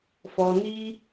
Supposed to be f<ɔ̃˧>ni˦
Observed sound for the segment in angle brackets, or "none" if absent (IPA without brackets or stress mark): ɔ˧